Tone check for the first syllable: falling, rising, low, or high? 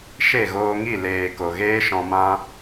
falling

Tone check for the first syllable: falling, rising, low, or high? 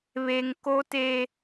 high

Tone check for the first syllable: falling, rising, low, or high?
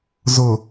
low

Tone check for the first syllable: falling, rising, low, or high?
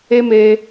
high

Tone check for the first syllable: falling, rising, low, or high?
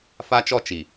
high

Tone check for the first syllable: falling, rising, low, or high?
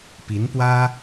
rising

